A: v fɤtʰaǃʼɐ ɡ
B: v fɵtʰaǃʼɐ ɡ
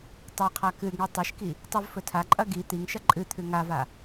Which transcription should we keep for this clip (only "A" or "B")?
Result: B